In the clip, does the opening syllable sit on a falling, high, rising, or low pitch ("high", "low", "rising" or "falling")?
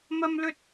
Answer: high